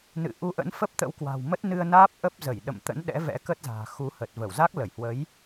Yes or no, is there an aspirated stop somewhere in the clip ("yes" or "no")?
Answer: no